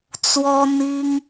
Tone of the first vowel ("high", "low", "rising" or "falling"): high